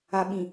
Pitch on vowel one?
low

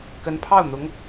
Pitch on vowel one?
rising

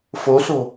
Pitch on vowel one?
rising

